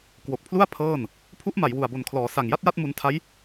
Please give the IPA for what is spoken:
k w o˨˩ k̚ pʰ l u˥˩ a̯ pʰ ɤː˥˩ n | pʰ u˦˥ ʔ m a˩˦ j w u˨˩ a̯ b o˨˩ n kʰ l ɔː˩˦ s a˨˩ ŋ j a˥˩ t̚ j a˥˩ t̚ m u˧ n tʰ a˦˥ j

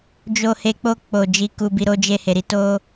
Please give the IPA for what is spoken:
d͡ʒ o˨ h e˨ k͡p o˧ k͡p o˨ d͡ʒ i˨ k u˨ b i˨ ɾ o˧ d͡ʒ e˧ h e˨ ɾ i˨˦ t o˦

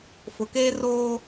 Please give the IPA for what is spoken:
f ʊ˨ k eː˦ r oː˦

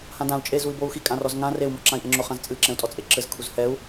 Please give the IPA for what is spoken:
h ã d ã u̯ t͡ʃʼ e z u i̯ b o u̯ x i kʼ ã r ɔ z ŋ ã r e u̯ m ɔ ǁ ã i̯ ʔ ɛ ŋ͡ǁ o χ ã z t͡sʼ ɨ ǁ ɛ̃ u̯ tʼ ɔ t͡sʼ e ǁ ɘ z kʰ u z h ɛ u̯

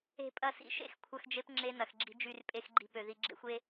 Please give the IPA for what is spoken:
e̤˨ pʼ ɐ˨ s ḭ˨ ʃ ḛ˦ x kʷʰ ɐ˦ x d͡ʒ e˦ p ŋ͡ǁ e˦ n ɐ˨ x ɡ͡ǁ i̤˦ d͡ʒ y˦˨ r pʼ e˦ x ɡ͡ǃ i̤˦ p ø˨ ð i˨ ɡ͡ǁ ḛ˦ xʷ e˦

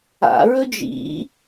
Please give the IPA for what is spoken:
a̰ ɹ ɵ d͡ʒ ḭ

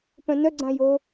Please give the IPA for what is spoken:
p œ̃ n œ ɡ͡ǀ ã j o

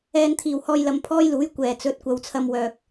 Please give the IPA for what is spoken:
ɛː˨ n t̪ʰ iː˨˩ w h ɔː˧ j l ɐ˨˧ m pʰ ɔː˥ j l uː˨˥ j kʷ ɛː˨˩ t͡s ɵ˨˥ t̚ kʷ ɐ˨ w t͡sʰ ɐ˧ m w œː˨ k̚

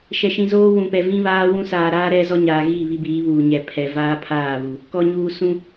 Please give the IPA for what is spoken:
ʃ ɛ˨ ʃ ĩ˨ z oː˦ w ũ˨ p ɛ˨ v ĩ˦ β aː˦ w ũ˦ s aː˨ ɾ aː˦ ɾ ɛ˦ z ɔ˦ ɲ aː˨ ɣ i˦˨ β i˦ b iː˨˦ β uː˨ ɲ ɛ˨ pʰ ɛ˨ v aː˦ pʰ aː˦˨ β u˨ | k ɔ˨ ɲ uː˨ s ũ˦

